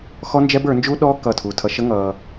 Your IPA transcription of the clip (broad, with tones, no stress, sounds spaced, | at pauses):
x ɔ˦ n d͡ʒ ɛ˦ b ə˞˨˦ n d͡ʒ uː˦ ɗ ɔː˦ k ʌ˦˨ tʰ uː˧ tʰ ʌ˦ ʃ ə˦ ŋ ʌː˧